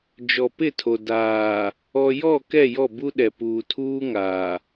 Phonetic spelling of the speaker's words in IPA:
d͡ʒ ɔ˨ p ɪ˦˨ tʰ o˨ d aː˨ | ɔ˨ j ɔ˦˨ k ɛ˦˨ j ɔ˦˨ b u˦ ɗ ɛ˨ p uː˨ tʰ uː˦ ŋ aː˨

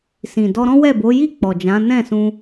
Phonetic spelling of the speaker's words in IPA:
s ĩ˨ d ɔ˧ ɾ ɔ̃˦ w ɛ˦˨ b o˨˦ j i˦˨ k͡p ɔ˨ d͡ʒ ã˨˦ n ɛ̃˦˨ s ũ˧

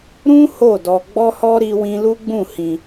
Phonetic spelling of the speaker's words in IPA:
ɾ ũ˦ h o˦˨ d ɔ˧ ɡ͡b ɔ˦ h ɔ˦ ɾ i˦ w ĩ˦ l u˦ ɡ͡b ũ˦˨ h ĩ˧

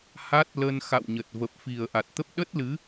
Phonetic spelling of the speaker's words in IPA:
h a˦˥ t̚ l ə˧ n x a̰˧˨ w ɲ ə˨˩ t̚ v ə˨˩ p̚ f i˨˩ ə̯ ʔ a˨˩ t̚ t̪ ə˦˥ p̚ ɗ ə˦˥ t̚ l ɨ˨˦

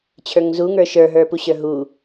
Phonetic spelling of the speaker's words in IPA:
t͡ɕʰ ə˞ ŋ z u ŋ ə˞ ʃ ə˞ ɦ ə˞ p u ɕ ə˞ ɦ u

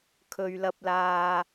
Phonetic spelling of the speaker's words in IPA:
kʰ ɵ˨ ɥ l ɐ˧ p̚ l aː˧

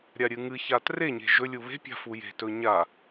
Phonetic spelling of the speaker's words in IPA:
ɾʲ a ɾʲ ɨ ŋ ɨ ç a t r e ɲ e̤ ʒ ɵ lʲ u β e̤ pʲ a̤ f u j e̤ t ɵ ɲ a

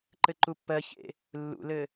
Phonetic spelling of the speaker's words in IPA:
ǃ ɘ ǃ u pː ɜ ç ḛ | lː ṵ l ɘ

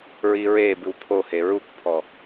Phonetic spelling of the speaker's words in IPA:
ɹ i ɹ e b ɨ w pʰ o h e ɹ u k pʰ ɔ

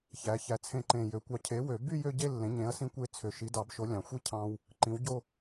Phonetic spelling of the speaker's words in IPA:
ç æ˩˥ ç æ˧ t͡sʰ ẽ˥˩ ǃ ẽ˨˩ j ø˩˥ kʷ ɑ˧ cʰ e˩˥ w ø˨˩˦ b y˥˧ j ø˥˧ ɟ e˥˧ lː ẽ˩˥ ɲ ẽ˩˥ ɐ̯ s ĩ˧ kʷ e˩˥ t͡sʰ ø˨˩ ʃ i˩˥ d ɑ˨˩˦ b ʃ o˩˥ lʲ ɑ̃˨˩ xʷ i˥˧ cʰ ɑ̃˧ w | ǃ ĩ˩˥ w ɟ o˥˧

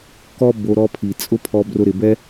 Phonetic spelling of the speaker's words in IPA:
k ɔ˦ b o˧ ɾ ɔ˧ pʰ i˨ t͡sʼ ʊ˦ pʰ ɔ˧ b r ʊ˧ ɾ ɪ˨ b ɛ˦

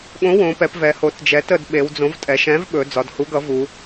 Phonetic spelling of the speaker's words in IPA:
ɠ õ˨˥ w õ˩˧ p ɛ˩˧ p v ɛ˩˧ h o˩˧ t d͡ʒ ɛ˩˧ t ə˩˧ d ɓ e˩˧ w d͡z õ˨˥ v tʼ ɛ˩˧ ʃ ɛ̃˨˥ v ɓ ɵ˩˧ d͡z ɒ˩˧ d h u˨˥ ɡ ʌ˨˥ v u˩˧

